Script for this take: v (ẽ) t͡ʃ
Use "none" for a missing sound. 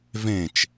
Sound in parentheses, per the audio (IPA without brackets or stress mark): ẽ